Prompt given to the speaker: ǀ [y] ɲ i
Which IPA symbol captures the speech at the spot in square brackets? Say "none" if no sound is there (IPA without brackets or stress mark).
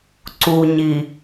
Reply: u